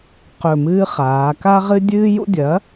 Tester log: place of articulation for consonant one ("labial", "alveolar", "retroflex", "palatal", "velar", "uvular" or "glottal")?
uvular